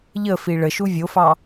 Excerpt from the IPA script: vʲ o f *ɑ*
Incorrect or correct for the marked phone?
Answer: correct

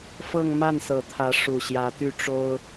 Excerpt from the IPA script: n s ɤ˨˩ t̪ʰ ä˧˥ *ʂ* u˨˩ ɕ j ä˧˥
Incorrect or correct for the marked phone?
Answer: correct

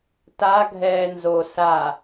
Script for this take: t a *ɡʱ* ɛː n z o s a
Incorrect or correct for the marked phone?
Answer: correct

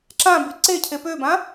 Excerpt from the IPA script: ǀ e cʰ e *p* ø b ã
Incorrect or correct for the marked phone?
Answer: correct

